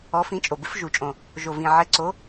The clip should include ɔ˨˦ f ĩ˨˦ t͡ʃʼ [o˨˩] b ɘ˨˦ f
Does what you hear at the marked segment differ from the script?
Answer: no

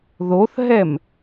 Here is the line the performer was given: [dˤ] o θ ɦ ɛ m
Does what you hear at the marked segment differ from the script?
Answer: yes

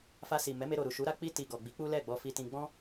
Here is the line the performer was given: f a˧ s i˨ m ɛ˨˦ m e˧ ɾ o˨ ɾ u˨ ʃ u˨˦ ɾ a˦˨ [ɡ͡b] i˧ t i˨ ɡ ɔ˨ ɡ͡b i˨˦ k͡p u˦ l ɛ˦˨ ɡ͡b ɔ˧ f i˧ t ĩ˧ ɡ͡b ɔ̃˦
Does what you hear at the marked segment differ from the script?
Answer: yes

